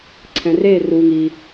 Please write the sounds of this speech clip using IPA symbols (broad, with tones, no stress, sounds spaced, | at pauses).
ǀʰ ɛ̃˩ r eː˦˨ r uː˩ ŋ i˩